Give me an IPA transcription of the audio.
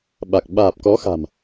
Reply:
ɓ a˨˩ k̚ ɓ aː˨˩ p̚ k ɔ˨˦ x a̤˨˩ m

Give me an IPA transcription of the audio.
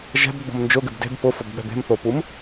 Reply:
ʒ ɛ̤ b ɡ͡b o̤ m n d͡ʒ ʊ ɡ ɪ b d e̤ b p ʊ f ʊ b ɓ ɛ̤ b e̤ m θ o p u m

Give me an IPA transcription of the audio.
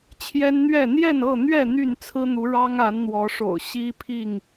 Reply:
t͡ɕʰ j ɛ˦ n n̪ ɥ ɛ˥˨ n̪ j ɛ˥˨ n ɤ˥˨ n̪ ɥ ɛ˥˨ n̪ y˥˨ n t͡sʰ ɹ̩˦ n̪ u˨˦ ɻ ɑ˦ ŋ a˨˦ n n̪ w ɔ˨˦ ʂ o̰˨˩ ʊ̯ ɕ i˦ pʰ i˥˨ ŋ

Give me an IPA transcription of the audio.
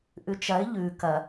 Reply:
ʔ ʉ t͡ʃ ɐ ɪ̯ ʎ ʉ k ɐ

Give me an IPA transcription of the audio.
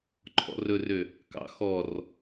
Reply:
ǃʰ ɔ̰ r ɵ r ø | k ɑ̰ x ɔ r

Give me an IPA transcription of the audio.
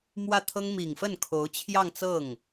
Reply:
m w ä˥˩ t̪ʰ ɤ˥ ŋ m i˨˩ ŋ f ə˥˩ n kʰ o˧˥ ʊ̯ t͡ɕʰ j ɑ˥˧ ŋ t͡s ɤ˥˩ ŋ

